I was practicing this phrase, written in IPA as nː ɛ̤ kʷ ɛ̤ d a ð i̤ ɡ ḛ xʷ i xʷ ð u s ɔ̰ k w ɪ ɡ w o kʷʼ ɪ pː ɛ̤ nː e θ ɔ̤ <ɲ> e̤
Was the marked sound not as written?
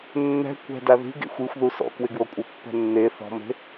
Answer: yes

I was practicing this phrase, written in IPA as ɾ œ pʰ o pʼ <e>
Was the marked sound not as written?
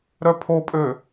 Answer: yes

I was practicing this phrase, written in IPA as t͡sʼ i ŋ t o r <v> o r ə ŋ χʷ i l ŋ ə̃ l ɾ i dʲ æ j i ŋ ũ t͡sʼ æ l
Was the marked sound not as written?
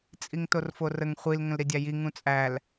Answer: yes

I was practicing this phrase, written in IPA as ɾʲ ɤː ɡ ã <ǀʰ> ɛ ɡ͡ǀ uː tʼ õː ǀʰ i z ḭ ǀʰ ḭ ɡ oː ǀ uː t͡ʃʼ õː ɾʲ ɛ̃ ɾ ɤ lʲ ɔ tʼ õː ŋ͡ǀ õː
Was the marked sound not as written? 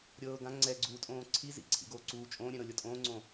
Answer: yes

